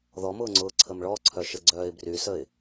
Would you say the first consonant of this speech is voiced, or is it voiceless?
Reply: voiced